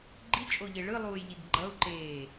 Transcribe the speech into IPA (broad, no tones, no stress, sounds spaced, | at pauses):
ɡ͡ǃ i t͡ʃʼ o ʎ e ɭ ɯ lˠ uː j ʎ i ɡ ɡ͡ǃ ʌ u̯ ǃ eː